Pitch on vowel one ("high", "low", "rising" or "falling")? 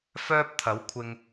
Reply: high